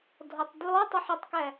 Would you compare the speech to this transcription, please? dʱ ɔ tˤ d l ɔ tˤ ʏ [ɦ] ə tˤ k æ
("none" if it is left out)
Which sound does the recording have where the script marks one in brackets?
ħ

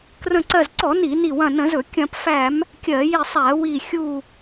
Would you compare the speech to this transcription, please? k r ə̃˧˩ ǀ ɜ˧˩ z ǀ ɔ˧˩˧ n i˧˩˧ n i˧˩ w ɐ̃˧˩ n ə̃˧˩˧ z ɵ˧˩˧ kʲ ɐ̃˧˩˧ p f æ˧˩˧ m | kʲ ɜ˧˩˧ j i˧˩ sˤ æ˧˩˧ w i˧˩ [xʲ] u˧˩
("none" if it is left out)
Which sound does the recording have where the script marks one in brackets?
xʲ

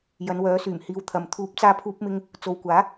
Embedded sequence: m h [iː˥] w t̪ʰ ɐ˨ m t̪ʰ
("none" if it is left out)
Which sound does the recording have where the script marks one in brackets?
iː˧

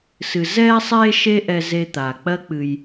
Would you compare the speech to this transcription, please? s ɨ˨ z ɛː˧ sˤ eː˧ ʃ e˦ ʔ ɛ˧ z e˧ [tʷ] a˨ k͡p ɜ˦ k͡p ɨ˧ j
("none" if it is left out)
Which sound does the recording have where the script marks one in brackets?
t̪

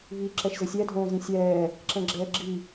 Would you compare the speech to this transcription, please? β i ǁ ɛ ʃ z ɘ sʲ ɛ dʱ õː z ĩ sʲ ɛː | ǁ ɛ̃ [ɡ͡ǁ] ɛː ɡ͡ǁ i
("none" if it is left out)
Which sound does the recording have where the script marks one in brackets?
ɡ͡ǁ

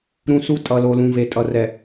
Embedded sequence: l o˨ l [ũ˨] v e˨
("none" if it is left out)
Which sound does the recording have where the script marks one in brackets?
ũ˨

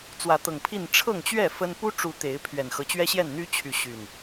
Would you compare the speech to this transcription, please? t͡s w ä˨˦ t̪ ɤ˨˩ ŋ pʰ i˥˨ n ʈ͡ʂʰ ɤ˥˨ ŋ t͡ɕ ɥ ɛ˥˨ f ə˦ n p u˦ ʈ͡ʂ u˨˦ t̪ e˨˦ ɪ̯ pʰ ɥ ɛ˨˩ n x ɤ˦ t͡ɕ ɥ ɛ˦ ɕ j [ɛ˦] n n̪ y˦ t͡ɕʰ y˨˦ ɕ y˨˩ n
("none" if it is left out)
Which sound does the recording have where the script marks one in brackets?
ɛ˥˨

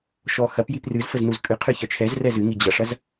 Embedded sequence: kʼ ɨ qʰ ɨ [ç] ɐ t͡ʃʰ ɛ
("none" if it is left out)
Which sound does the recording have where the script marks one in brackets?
ç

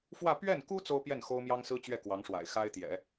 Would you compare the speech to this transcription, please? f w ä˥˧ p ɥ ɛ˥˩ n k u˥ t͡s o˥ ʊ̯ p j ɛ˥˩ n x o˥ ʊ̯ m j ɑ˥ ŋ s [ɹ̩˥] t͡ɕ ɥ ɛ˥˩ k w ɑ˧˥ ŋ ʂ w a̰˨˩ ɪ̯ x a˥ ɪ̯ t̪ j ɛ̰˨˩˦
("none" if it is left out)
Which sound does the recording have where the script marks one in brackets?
ɹ̩˥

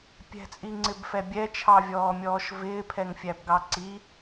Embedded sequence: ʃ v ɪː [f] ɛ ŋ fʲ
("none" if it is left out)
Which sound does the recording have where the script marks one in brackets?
pʰ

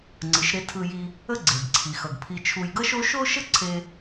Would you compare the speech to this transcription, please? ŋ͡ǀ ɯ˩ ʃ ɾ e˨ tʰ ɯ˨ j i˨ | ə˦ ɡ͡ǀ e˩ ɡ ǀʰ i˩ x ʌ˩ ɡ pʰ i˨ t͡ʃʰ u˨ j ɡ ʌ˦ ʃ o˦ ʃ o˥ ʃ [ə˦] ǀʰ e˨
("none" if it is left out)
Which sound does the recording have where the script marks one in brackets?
ə˦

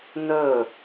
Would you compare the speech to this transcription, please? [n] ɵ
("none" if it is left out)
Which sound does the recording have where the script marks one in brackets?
n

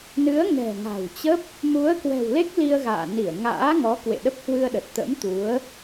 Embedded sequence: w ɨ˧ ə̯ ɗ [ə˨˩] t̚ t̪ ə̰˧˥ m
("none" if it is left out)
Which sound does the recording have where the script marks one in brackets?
ə˨˩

